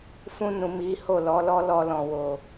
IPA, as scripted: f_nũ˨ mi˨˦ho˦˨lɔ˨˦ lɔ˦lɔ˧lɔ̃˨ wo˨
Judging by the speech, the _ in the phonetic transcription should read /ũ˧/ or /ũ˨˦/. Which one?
ũ˧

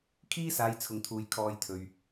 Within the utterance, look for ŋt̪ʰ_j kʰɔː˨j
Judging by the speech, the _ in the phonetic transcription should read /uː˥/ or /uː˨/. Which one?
uː˨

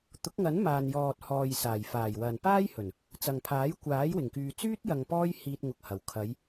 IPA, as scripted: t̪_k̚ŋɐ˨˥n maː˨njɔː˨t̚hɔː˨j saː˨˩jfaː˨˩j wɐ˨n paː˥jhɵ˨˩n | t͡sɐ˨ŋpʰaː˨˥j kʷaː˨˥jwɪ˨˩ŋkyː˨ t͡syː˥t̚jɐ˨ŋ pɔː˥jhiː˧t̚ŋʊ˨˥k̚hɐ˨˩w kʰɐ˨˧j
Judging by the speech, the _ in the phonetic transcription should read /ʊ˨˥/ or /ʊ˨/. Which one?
ʊ˨˥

